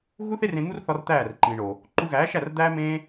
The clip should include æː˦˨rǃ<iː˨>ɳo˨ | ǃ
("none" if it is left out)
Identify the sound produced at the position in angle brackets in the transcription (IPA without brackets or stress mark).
ĩː˨